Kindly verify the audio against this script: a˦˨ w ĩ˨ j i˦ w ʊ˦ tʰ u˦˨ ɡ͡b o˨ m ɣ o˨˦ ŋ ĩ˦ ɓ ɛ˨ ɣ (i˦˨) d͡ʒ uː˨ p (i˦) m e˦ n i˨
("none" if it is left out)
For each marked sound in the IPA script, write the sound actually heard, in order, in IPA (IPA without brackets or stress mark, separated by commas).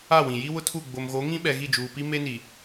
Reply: i˦˨, i˦